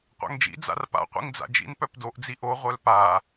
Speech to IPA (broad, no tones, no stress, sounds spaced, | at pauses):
qʷ a̰ ŋ d͡ʒ ḭ d͡z a̰ r p a̰ qʷ ḭ ŋ d͡z a̰ d͡ʒ ḭ n p œ p d o ʔ d͡z i ʔ o ʁʷ œ l p a